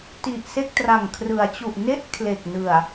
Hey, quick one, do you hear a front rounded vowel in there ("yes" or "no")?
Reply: no